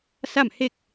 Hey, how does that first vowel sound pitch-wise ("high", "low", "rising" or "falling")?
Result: falling